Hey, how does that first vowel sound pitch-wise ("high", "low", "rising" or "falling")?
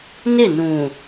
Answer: falling